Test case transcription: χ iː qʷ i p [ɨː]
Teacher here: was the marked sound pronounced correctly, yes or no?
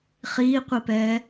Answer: no